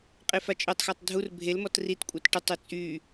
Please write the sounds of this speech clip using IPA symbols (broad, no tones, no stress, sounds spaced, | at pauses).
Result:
qʼ e f a t͡ʃʼ ø tˤ x a tˤ dʱ u r bʱ e l m ɔ t r i t kʷʼ ɛ t ʈ u tˤ ø t͡sʼ y